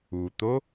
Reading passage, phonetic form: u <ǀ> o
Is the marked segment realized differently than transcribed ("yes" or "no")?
yes